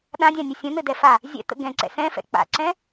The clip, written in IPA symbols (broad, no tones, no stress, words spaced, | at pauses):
ɗãdʲãnʲɘ sʲə̃n̪ɘdɛfa | zʲɛ̰t̪ə̰ ɡɛ̃ǀɛ̰ sɛ̃fɛ̰ k͡pa̰ǀɛ̃